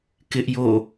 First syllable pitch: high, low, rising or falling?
high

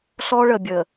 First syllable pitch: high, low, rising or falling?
high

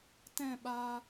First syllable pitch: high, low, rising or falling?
falling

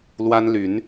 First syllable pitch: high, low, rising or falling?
high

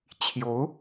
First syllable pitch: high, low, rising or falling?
rising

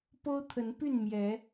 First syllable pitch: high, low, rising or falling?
high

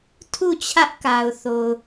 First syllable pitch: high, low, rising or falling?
falling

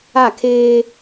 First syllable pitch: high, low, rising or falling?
falling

